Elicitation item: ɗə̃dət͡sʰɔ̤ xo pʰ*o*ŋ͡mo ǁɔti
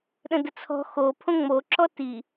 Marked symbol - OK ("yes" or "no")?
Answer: no